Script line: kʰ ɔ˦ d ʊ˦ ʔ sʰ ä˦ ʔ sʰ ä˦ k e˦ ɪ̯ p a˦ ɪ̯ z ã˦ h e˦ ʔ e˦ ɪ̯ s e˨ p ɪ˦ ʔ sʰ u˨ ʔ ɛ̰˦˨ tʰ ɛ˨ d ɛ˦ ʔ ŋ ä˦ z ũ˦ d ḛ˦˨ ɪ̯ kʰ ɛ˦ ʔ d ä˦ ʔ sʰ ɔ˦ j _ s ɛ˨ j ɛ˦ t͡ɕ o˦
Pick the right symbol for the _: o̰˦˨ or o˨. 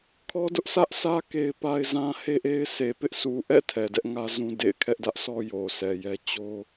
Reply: o˨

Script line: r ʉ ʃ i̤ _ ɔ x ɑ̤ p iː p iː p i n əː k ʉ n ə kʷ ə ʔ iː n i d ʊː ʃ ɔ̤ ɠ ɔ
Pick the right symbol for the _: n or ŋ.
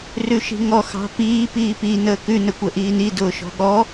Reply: ŋ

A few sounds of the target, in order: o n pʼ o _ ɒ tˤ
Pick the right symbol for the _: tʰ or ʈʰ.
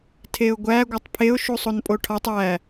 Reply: ʈʰ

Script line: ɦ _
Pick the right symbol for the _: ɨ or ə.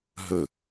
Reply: ə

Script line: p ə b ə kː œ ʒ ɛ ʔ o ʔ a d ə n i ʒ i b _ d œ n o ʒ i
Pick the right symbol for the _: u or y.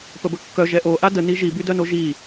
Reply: y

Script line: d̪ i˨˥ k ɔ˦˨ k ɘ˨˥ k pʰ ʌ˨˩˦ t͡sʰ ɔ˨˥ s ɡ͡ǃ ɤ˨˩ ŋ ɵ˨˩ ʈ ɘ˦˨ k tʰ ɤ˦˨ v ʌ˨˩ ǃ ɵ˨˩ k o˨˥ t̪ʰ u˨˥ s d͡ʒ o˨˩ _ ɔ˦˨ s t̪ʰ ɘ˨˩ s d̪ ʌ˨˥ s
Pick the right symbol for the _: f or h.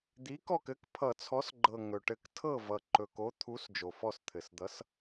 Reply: f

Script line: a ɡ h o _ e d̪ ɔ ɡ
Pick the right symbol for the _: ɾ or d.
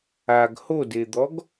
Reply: d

